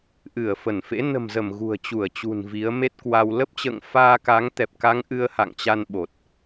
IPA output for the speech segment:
ʔ ɨ˧˩ ə̯ f ə˧˩ n f ḛ˧˥ n ə̤˨˩ m z ə˧˩ m ɣ ṳ˨˩ ə̯ t͡ɕ u˧˩ ə̯ t͡ɕ ṳ˨˩ n v i˨˦ ə̯ m e˦˥ t̚ k w a˧ w l ə˦˥ p̚ t͡ɕ ə̰ː˧˨ ŋ f aː˧ k a˨˦ ŋ t̪ ɛ˨˩ p̚ k a˨˦ ŋ ʔ ɨ˧ ə̯ h a̰˧˨ ŋ t͡ɕ a˧ n ɓ o˨˩ t̚

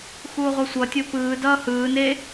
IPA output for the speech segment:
x uː ʁʷ ʌ sʷ ʌ tʲ o p ɯː d ʌː h ɯː n e

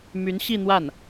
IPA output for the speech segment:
m y˧˥ n ɕ i˥˧ n̪ w a˥˩ n

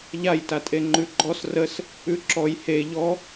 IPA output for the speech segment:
ʎ a j t a tʼ e ŋ͡ǃ ʉ ɡ͡ǃ ɔ s r ə s | ʉ ǁ ɔ j h e ʎ ɔ

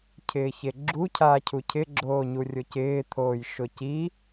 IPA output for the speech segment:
cʰ ɪː ç e ɡ͡ǁ u cʰ aː cʰ u cʰ ɪ ɡ͡ǁ oː ɲ u rʲ ʊ c ɪː t̪ʰ oː j ʃ ʊ c i

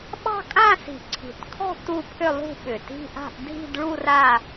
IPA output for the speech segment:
ɓ ɑ̤˥˧ kʼ ã˥˧ s i̤˨˩ ǀʰ i̤˨˩ t kʰ ɔ̤˥˧ t u˥˧ pʰ ʏ˥˧ lˠ ṳ˥˧ ɓ ʏ˨˩ t i̤˥˧ ʔ a̤˥˧ ʔ dʱ i̤˥˧ d ɭ u˥˧ r a˥˧

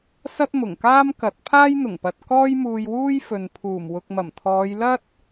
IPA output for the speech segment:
s ɐ˥ t̚ m ʊ˨˩ ŋ k aː˥ m k ɐ˨˥ t̚ pʰ aː˥ j n̪ ʊ˨˩ ŋ p ɐ˨ t̚ k ɔː˥ j m uː˧ j w uː˥ j f ɵ˨ n pʰ uː˨˩ m w ʊ˨ k̚ m ɐ˨˩ m t̪ʰ ɔː˨˧ j l ɐ˥ t̚

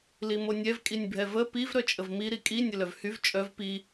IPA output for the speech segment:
l i m o nʲ ɛ v kʼ i nʲ bʱ ɛ v ə p i v ɾ œ t͡ʃʼ ə v m i ɾ i kʼ i nʲ ə l œ v h y v t͡ʃʼ œ v p i

